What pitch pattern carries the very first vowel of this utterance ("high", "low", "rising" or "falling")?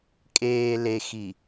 low